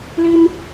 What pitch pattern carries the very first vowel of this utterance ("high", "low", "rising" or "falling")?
high